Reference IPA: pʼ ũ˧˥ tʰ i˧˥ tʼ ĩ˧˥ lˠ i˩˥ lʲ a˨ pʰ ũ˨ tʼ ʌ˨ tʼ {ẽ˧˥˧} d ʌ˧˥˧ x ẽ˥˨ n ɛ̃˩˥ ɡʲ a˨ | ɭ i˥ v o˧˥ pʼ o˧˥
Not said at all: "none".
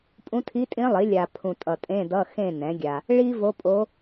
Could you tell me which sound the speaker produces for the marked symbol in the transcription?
ẽ˧˥˧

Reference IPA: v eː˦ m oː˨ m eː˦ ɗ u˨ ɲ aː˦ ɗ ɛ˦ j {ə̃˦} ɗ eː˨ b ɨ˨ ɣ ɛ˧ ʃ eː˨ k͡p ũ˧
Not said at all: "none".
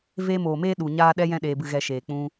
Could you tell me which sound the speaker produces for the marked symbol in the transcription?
ɛ̃˦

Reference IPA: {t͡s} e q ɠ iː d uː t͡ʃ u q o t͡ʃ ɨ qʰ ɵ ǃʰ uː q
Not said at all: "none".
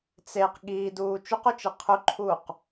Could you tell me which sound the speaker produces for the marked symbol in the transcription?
t͡s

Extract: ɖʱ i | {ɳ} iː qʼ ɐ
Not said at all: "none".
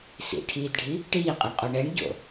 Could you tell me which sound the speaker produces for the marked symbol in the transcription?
ʈ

